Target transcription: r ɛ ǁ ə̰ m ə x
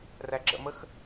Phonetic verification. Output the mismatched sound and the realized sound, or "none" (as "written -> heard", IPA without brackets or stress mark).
ɛ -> æ